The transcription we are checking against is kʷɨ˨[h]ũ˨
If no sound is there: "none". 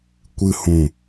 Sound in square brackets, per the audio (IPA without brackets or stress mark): h